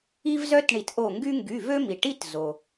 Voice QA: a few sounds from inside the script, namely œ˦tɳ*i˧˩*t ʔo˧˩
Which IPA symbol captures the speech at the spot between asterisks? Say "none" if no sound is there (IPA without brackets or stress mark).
i˧˩